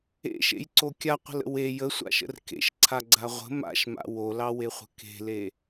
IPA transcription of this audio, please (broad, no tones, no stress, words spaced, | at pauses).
ḛʃḛjǀo kʲaqʷə̤lə̰ we jəsʷa̰ʃə̰r kḛʃǀʰaɡ͡ǀa ʁʷə̤ ma̰ʃma̰ wolɑweχʷə̤ ke̤le